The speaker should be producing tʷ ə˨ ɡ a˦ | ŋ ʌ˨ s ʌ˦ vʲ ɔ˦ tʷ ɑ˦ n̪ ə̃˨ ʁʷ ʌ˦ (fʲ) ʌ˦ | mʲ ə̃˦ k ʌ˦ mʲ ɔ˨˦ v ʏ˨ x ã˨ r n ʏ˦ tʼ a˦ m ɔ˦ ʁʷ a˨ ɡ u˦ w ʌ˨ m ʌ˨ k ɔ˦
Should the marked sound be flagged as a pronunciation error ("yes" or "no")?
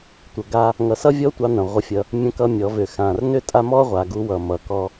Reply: no